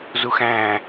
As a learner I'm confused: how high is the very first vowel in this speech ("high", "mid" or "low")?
high